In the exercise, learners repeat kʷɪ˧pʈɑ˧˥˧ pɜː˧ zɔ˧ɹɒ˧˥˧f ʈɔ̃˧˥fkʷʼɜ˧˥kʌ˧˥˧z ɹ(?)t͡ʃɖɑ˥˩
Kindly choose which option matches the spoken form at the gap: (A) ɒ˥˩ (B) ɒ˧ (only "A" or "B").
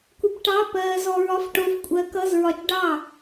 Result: B